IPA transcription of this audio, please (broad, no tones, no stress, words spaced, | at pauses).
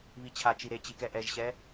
βit͡ɕʰat͡ʃi ɾe t͡ɕikɛʔɛʒɕɛ